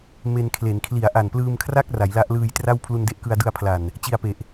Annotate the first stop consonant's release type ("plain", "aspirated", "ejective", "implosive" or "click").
aspirated